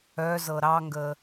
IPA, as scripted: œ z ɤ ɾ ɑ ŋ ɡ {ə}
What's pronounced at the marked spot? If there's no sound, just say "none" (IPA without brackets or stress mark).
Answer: ə